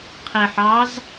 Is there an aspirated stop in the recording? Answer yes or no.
yes